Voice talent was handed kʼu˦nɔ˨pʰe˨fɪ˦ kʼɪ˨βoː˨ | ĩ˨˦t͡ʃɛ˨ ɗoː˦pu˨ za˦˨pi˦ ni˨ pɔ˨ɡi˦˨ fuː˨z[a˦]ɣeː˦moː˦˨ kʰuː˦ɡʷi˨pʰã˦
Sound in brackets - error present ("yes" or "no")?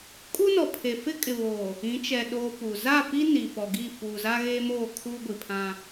no